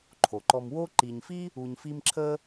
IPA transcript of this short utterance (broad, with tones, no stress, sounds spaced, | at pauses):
ǃʰ o˩ ǃ ɔ˨ m w o˦ ǃ i˨ ɲ f i˥ | u˨ ɲ f i˦ m ǁʰ ə˥